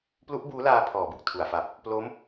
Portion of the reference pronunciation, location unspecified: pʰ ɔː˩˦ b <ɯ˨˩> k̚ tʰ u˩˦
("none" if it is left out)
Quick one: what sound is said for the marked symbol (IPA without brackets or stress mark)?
ɯ˨˩